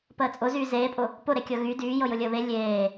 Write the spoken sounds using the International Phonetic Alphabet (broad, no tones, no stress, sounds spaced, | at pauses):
p əː t͡sʼ ʊ z yː z eː pʼ ʊ | p ʊ ɾ e kʲ ɤ ɣ y d yː j ɤ j ʊ lʲ əː β e lʲ eː